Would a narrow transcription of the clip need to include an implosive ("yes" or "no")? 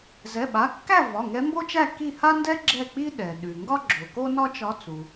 yes